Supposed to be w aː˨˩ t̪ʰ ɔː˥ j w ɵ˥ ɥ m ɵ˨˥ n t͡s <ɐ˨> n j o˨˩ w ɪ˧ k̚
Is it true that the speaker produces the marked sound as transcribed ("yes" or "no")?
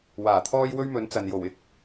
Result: yes